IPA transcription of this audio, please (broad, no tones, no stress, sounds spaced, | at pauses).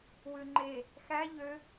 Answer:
w ʉ ŋ͡ǃ e | x æ ʎ ø